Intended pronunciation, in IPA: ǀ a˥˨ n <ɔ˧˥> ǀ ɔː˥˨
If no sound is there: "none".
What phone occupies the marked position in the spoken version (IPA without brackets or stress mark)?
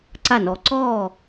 ɔ˧˥